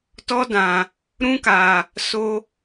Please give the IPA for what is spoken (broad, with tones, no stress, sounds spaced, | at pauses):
t ɔ˦ d ã˧ | ɾ ũ˦ k a˧ | s o˧